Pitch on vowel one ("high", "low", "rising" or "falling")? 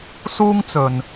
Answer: high